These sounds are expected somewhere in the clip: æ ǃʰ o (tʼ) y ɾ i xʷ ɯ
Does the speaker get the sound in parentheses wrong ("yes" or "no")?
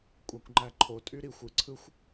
no